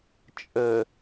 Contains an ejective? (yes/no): yes